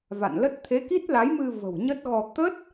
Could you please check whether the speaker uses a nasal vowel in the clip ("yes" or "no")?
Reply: no